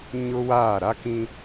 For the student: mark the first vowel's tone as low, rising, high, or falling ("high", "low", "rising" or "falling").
high